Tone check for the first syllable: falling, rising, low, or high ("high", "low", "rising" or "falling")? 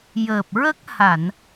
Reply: low